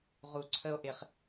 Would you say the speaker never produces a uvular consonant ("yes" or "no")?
no